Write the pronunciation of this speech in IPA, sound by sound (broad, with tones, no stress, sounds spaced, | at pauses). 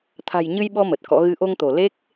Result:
t̪ʰ a̤˨˩ j ɲ ɨ˧ j ɓ ɔ˧ m ə˨˩ t̚ k ɔ̰˧˥ ɣ ɨ˨˦ ʔ o˧ ŋ t̪ o˧˩ l e˦˥ k̚